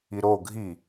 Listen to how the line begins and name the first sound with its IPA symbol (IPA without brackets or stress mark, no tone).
i